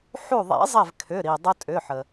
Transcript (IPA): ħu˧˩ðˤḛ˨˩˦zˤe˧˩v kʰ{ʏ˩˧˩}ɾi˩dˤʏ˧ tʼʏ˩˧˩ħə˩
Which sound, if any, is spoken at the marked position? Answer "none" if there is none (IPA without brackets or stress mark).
ʏ˩˧˩